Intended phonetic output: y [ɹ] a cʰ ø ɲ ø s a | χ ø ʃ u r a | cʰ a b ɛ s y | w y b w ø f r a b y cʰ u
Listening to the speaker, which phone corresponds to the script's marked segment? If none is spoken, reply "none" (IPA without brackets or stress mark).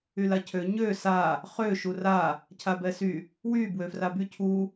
l